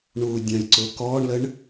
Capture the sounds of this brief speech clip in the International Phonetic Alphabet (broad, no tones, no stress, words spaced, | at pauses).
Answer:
ɳuːdʲɐ̃jǀʊ kɔːɳləɳ